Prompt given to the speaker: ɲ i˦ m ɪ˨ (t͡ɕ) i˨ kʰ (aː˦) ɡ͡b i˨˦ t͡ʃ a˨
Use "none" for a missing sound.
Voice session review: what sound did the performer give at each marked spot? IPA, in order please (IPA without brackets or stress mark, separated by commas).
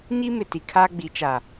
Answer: t, aː˦